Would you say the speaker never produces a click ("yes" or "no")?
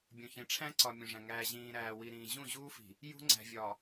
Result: no